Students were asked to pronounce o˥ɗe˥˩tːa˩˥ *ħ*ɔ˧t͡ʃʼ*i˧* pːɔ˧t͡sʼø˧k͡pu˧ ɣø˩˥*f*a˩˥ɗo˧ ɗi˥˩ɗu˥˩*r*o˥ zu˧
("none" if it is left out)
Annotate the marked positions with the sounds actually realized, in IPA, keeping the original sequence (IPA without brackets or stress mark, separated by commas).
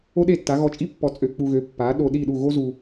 ɣ, i˥, pː, ɣ